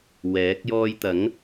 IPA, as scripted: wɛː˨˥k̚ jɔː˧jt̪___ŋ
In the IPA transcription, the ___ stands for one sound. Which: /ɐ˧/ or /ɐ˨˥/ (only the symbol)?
ɐ˨˥